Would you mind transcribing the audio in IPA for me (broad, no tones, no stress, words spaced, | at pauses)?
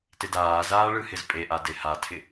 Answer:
tɪdaːzaː ɭɯhɪzpʼeʔa dehatʰɪ